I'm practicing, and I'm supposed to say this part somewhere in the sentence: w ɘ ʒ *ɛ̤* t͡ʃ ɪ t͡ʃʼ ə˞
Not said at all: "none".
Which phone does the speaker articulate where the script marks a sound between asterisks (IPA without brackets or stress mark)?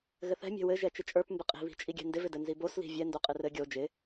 ɛ